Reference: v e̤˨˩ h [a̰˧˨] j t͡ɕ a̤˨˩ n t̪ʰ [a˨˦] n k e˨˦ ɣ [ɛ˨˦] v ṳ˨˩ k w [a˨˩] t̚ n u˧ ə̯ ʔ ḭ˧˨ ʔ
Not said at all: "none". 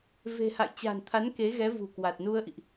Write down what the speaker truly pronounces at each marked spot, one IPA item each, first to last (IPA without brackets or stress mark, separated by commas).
a̰˧˨, a˨˦, ɛ˨˦, a˨˩